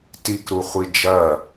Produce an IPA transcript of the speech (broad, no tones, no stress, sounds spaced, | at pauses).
t i k ɾ u χʷ i d͡ʒ ɐ